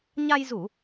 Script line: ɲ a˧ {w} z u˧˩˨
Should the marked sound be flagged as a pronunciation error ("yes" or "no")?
yes